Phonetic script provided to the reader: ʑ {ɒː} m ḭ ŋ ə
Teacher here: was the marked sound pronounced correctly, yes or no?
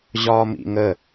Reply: yes